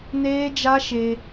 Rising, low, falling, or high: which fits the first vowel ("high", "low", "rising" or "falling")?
high